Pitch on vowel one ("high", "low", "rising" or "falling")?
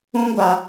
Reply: high